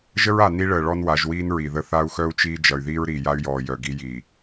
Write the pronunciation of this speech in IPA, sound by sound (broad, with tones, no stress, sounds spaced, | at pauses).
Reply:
ʒ ə˦ ɹ a˨ n i˦ ɭ əː˨ ɭ ɔ˦ n w a˨˦ ʒ w iː˦ n ɹ i˨ ð ə˦ θ a˦ u̯ x œ˦ u̯ t͡ʃ iː˦ d͡ʒ ʌ˨ y̯ ð iː˦ ɹ ɾ iː˨ j a˦ y̯ j ɔː˨ j œ˨ ɡ i˦ j iː˨